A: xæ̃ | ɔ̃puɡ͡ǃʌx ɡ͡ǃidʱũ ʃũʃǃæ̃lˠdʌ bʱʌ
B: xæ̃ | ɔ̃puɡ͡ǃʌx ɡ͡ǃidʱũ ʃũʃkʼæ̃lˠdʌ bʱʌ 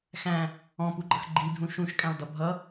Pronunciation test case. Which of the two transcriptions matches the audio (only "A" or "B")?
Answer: B